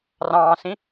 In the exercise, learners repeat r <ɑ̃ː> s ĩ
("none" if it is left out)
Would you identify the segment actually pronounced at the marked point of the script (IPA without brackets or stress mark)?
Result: ɑ̃ː